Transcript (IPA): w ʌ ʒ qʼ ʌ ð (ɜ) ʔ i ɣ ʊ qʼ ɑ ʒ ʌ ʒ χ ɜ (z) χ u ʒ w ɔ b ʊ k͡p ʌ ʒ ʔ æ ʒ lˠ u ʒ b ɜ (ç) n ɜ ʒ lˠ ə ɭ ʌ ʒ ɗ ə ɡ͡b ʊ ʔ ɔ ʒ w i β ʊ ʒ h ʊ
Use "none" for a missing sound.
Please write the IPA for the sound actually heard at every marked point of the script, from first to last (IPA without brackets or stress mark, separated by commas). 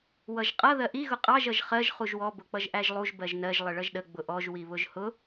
ɜ, ʒ, ʒ